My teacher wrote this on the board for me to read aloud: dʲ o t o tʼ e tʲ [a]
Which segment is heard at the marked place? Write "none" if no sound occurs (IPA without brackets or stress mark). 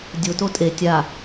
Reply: a